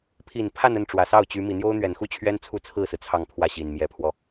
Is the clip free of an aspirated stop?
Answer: no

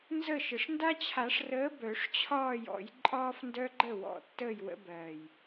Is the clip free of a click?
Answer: no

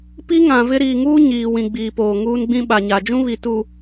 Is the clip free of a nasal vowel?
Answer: no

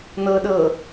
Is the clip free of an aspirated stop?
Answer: yes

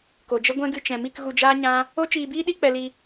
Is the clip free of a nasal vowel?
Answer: no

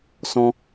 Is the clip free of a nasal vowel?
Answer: no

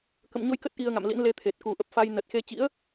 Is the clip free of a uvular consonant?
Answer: yes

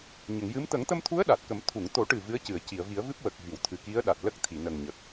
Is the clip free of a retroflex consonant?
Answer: no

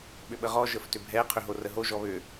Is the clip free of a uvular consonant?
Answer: no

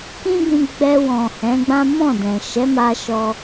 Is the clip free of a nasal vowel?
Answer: no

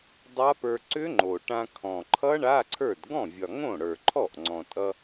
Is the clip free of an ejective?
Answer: no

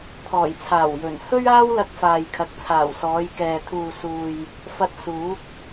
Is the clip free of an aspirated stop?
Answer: no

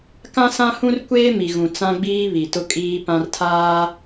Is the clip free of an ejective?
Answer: no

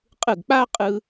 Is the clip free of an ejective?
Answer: no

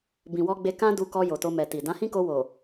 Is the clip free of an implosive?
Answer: yes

